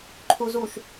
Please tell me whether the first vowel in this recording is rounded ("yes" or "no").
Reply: yes